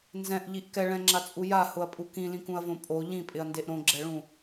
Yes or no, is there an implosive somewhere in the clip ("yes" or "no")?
no